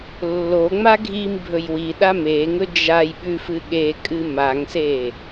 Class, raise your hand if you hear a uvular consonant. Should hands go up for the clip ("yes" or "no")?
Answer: no